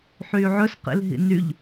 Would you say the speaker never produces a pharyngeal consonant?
no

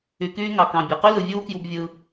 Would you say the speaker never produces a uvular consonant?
no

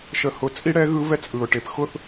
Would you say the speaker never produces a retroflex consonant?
no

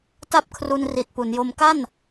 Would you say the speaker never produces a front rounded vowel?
yes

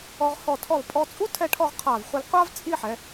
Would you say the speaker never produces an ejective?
no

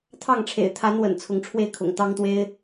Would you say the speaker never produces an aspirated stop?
no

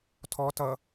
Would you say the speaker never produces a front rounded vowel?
yes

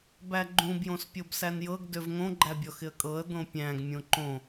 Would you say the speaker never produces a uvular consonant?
yes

